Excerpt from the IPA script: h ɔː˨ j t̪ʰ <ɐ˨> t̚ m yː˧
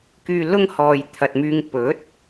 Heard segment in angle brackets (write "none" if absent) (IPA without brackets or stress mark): ɐ˨